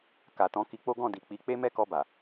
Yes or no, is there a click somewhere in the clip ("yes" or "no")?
no